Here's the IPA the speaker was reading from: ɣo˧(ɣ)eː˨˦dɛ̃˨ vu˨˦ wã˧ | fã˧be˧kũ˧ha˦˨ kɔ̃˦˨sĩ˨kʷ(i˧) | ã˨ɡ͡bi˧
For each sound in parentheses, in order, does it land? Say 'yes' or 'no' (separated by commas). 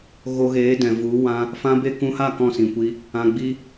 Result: yes, yes